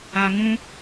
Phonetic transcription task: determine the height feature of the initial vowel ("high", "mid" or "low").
low